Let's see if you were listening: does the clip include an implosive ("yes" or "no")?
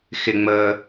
no